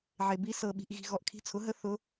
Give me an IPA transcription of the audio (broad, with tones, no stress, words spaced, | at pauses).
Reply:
ʕe˨bi˧˥ sɤ˨ɓi̤˨ʔ ɣi̤˨ɣɔ˨ʔkʰi̤˧˥ t͡sʰʊ˩˥ɦə˧˥ θʊ˧˥